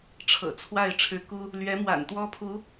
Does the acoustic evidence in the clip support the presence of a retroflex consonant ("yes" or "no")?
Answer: yes